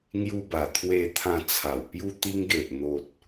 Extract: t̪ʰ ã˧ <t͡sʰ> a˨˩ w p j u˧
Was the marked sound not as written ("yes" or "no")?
no